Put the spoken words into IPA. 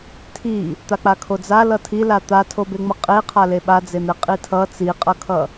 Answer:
tʰi | t̪ak͡pakʰod͡za lʌtʰila t̪atʰobeŋ͡mʌ qʼeqʰale ɓad͡zen̪e qʼitʰʌ t͡siqʼʌkʰʌ

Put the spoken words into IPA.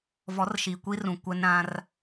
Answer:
vɔ˨˦rʃi˨kʷi˦rũ˨ kʷɛ˦n ɾã˦r

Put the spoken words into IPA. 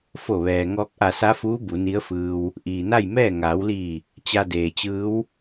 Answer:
fo˧˩ʋɛː˩ ŋɔː˧k̚ʔa˧˩sa˧˥fuː˧˥ bu˩˧ni˧˥ə̯fɯː˧w | ʔiː˩na˥˨jmɛː˥˨ ŋaː˩˧wliː˧˩ | t͡ɕa˧deː˩t͡ɕɯː˧˥w

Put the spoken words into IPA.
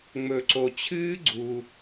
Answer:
ŋ͡mɵ˧ǀo˧ t͡ɕʰɨː˦ ɡ͡ǀu˧

